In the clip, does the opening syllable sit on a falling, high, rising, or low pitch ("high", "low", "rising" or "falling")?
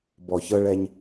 low